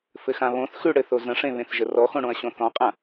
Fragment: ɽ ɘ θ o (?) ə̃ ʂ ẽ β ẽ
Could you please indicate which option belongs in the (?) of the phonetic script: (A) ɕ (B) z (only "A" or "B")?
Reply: B